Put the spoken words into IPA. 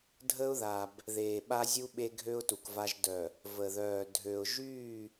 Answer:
dʱ ə˦ ʊ̯ ð a˨ b | ð eː˨ ɓ a˦ zʲ u˦ ɓ e˦ ɡʱ ø˦ ʊ̯ t u˨ k v a˦ ʒ d œ˨ | v ə˨ ð œː˨ dʱ ø˨ ʊ̯ ʒ yː˦˨

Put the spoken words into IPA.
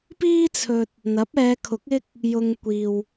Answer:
p iː˥ t͡sʰ ɵ˧ t̚ | n̪ ɐ˨˥ p̚ ɛː˨˧ kʰ ʊ˨˥ k̚ ɪ˥ k̚ | j ʊ˨ ŋ kʷ iː˨ w

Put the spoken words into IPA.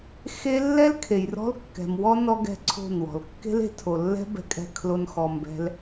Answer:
x e˦ lː ɛ˦ l kʰ e˨ j r ɔ̤˦ l kː ɛ̤˨ m w ɔ˦ n ɔ˦ ɡ ɛ̤˦ ǀʰ o̤˦˨ n w ɔ̤˨ l kː e̤˦ l e̤˨˦ tʰ o˨ lː ɛ̤˦ b ɛ̤˧ kʼ ɛ̤˧ kʰ l o˧ n x ɔ˧ m b ɛ̤˦ l

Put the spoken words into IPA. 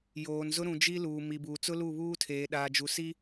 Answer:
j oː˨ n z ʊ˦ ɾ ũ˨ d͡ʒ i˦ l uː˨ m i˨ b uː˨ t͡s ʊ˦ l u˦˨ β uː˦ tʰ eː˨ ɗ aː˨ d͡ʒ u˨ s i˦

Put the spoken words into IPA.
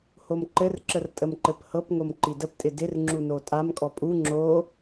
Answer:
h o m ǃ ɘ r ǁ ə r tʼ ə m ǃ ɘ p h ɤ p ŋ o m ǃ i d ə p tʼ ɪ d ɪ r ŋ͡ǁ u n o tʼ a m kʼ ɔ pʼ u ŋ͡ǁ o

